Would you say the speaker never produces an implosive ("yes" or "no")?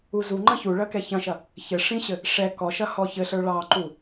yes